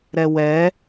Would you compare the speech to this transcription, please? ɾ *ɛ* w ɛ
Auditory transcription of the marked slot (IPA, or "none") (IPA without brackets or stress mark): ɛ